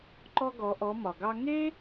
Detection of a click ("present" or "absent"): present